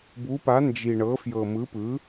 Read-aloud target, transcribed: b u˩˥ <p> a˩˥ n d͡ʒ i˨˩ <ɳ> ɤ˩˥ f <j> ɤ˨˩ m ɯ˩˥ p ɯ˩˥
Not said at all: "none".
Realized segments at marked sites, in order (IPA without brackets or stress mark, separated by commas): p, ɳ, j